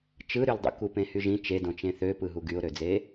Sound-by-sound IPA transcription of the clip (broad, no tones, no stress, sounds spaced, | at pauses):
t͡ʃ ɯ ɾ y l dˤ ṵ k u p ẽ h y ʒ ĩ t͡ʃ e d õ t͡ʃ ẽ θ ø p ɯ ɦ u ɡ y ʊ̯ ɾ ø d͡z e